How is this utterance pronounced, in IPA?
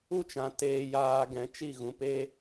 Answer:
u˦˨ t͡ʃ ã˨ t eː˧ j aː˧ ɡ ɛ̃˨˦ t͡ʃ i˦˨ ɣ ũ˧ p e˦

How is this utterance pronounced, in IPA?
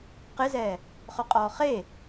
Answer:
q ɪ z ɛː | χ ʊ qʼ ɔː χ e

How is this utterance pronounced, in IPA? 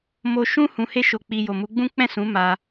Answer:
m o˧ ʃ ũ˦ h ũ˧ h e˦ ʃ o˧ k͡p i˧ j o˨ m u˨˦ ɡ͡b ũ˦ k͡p ɛ̃˦˨ s ũ˨˦ m a˧

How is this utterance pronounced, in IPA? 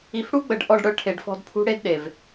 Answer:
i˨ f ɽ u˦ ɡ͡b ə˨ ɖ ʔ ɔ˦˨ ɖ ɽ œ˦ ʈʰ e˨ ɖ f ɔ̤˦ d pʰ ṳ˦ ɽ e˦ d ɗ e˨ v

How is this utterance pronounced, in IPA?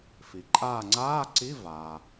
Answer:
f i˩ ǃʼ aː˦˨ ŋ͡ǀ aː˧˥˧ ǀ i˧˥˧ v aː˩

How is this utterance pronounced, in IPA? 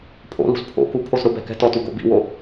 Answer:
pʰ o̰ l ṳ z pʰ o̰ k u pʰ o z ɾ ʊ b ɛ̤ k ɛ̤ t ɔ t u ɡ o̰ b ḭ w o

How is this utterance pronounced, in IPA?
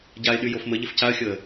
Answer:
ɟ a ɪ̯ ɗ y j o f m ə ʎ ɪ f c a ə̯ xʲ ɤ ə̯

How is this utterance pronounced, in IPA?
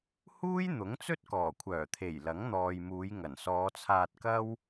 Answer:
h uː˥ j n̪ ʊ˨˥ ŋ t͡s ɵ˥ t̚ k ɔː˨˩ kʷʰ œː˨˩ t̪ʰ e˨˩ j l ɐ˨˥ ŋ n̪ ɔː˨ j m uː˨˧ j ŋ ɐ˨˩ n s ɔː˨˧ t͡sʰ aː˧ t̚ k ɐ˥ w

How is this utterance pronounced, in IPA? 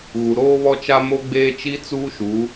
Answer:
ɣ u˨ ɾ oː˦ β ɔ˦ t͡ʃ a˦ m o˦ ɡ͡b eː˦ t͡ʃ i˦ t͡s uː˦ ʃ u˨˦

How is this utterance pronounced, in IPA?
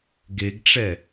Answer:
ɡ e ɡ ʈ͡ʂ ɛ

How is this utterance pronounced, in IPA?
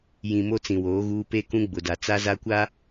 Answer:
j ĩ˨ m o˦ t͡s ĩ˨ w oː˨˦ ɣ uː˦ p e˦ k ũ˦ ɡ͡b ʊ˨ d a˨ t͡s a˦ z a˦ kʷ a˦

